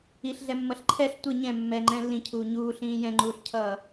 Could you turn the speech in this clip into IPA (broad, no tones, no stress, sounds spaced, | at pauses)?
i ɬ ɮ ɛ mː ʌ ɬ ǃʰ ɛ ɬ tʷ ɯ ɲ ɛ̃ mː ɛ ŋ͡ǃ ɛ̃ lː ĩ cʰ uː ɲ uː ɬ ĩː j ɛ̃ ŋ͡ǃ uː ɬ cʰ ʌː